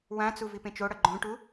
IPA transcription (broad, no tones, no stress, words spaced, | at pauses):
wãt͡su vipẽt͡ʃoɽʌ ɡ͡ǃõʈu